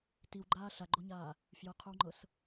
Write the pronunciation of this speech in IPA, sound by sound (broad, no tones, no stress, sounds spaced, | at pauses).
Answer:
t i w ɡ͡ǃ aː ɬ a ɡ͡ǃ o ɲ aː | f j ɤ qʰ o w ŋ͡ǃ ɤ s